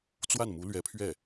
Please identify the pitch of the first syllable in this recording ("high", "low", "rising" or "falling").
falling